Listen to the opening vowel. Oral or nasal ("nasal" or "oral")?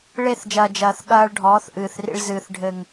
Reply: oral